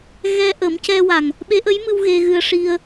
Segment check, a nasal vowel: absent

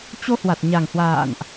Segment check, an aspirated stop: absent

